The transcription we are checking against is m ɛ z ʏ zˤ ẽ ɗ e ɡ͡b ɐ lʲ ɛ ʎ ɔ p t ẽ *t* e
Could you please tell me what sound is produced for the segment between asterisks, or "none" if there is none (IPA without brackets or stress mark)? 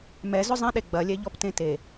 t